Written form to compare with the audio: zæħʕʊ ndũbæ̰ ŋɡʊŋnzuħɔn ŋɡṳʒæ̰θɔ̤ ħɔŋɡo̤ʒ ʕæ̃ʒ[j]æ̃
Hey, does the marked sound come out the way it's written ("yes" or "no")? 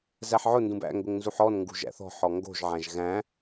no